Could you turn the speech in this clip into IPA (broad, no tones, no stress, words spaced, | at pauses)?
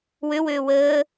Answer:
wøwøː wəː